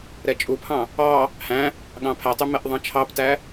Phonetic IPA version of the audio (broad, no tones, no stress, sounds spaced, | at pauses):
ɾ ɛ t͡ʃʼ u pʰ ɑ̃ | ɑ | h æ̃ | ɠ ɑ̃ pʰ æ tˤ y m ɛ ʔ ðˤ ɑ̃ t͡ʃʰ ɑ p t æ